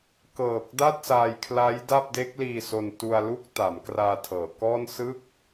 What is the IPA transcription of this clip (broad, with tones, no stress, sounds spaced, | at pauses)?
k ɤː˨˩ k̚ d a˥˩ t̚ s aː˧ j kʰ l a˦˥ j d a˥˩ p̚ d e˦˥ k̚ l iː˧ s o˧ n t u˧ a̯ l u˥˩ k̚ t a˩˦ m k r aː˧ tʰ ɤː˩˦ k ɔː˥˩ n s ɯ˥˩ k̚